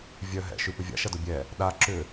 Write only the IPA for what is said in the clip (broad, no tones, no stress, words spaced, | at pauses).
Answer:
vʲœ ɦɛ̰ ʃypʏvʲa̰ ʃɐdʊbʲɛ | ɗa ǁʏ